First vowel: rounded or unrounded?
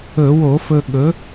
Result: rounded